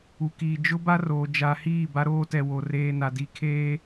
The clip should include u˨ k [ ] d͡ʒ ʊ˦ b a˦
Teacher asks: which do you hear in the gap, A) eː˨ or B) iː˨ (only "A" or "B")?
B